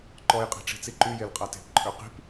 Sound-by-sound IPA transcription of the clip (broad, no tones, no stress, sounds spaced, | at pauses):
ǃ ɔ j qʼ e̤ ʈ͡ʂ i̤ t͡s i ǃ y j e l qʼ a t e̤ p ǃʼ ø q i̤ p